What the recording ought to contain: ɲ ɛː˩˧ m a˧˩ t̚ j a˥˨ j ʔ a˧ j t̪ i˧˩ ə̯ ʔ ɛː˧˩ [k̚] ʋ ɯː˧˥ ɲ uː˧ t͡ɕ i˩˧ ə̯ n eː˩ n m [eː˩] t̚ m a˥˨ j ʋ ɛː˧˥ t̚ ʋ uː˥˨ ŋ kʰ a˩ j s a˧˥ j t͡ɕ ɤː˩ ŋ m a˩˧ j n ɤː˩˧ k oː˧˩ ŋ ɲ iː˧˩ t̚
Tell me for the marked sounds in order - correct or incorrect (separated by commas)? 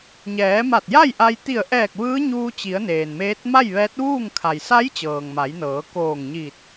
correct, incorrect